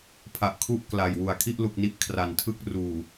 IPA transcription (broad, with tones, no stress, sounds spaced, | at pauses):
pʰ a˨˩ ʔ kʰ u˥˩ ʔ k l a˨˩ j w u˨˩ a̯ kʰ i˥˩ ʔ l u˨˩ k̚ n i˦˥ ʔ kʰ r a˨˩ n tʰ ɯ˥˩ k̚ r uː˨˩